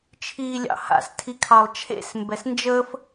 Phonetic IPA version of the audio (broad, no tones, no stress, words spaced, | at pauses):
t͡ʃʰiːlʲɑ̰ha̰s tʰikʰɑlˠt͡ʃʰḛs mbɛsnd͡ʒəːf